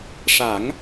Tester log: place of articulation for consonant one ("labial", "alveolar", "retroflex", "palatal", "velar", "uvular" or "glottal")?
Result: retroflex